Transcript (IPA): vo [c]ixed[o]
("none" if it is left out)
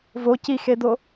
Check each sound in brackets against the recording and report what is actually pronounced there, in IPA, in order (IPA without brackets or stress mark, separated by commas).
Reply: c, o